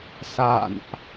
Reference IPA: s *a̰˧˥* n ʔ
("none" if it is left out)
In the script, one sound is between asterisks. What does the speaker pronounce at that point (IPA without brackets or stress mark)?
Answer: a̰˧˨